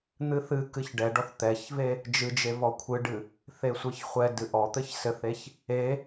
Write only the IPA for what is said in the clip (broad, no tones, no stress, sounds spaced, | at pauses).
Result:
n̪ ɨ θ ɨ k ɨ ç ɖ ɛ ɖ ɔ θ t̪ ɛ ç v e | d͡ʒ ɨ d͡ʒ e v ɔ kʷʰ ɨ ɖ ɨ | θ e sʷ ɨ ç χʷ ɛ d ɨ ʔ ɔ t̪ ɘ ç s ɘ θ e ç | e